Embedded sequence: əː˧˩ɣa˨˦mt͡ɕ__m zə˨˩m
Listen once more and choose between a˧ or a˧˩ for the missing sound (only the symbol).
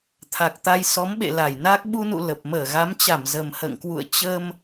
a˧˩